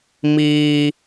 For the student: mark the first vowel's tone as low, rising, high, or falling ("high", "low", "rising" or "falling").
high